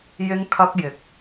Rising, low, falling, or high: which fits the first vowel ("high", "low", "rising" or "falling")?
high